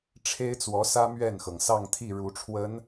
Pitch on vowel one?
high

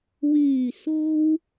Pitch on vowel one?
low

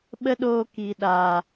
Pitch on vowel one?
high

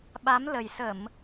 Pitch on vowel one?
rising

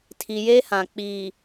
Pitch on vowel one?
low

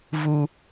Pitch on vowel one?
low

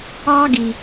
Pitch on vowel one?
high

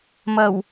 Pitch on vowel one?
low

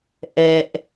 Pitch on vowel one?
low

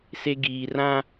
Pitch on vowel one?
high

